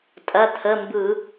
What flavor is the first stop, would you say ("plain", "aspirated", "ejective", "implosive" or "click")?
ejective